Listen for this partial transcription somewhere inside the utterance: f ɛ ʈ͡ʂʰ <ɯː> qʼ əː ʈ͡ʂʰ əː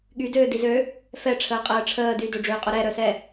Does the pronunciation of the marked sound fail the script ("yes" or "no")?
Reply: yes